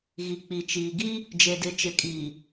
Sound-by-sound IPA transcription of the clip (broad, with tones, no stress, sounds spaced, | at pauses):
ɣ i˨ k͡p i˨ t͡ʃ iː˨ ɡ i˦ | d͡ʒ e˨ d ɪ˨˦ t͡ʃ ɪ˨ kʼ iː˨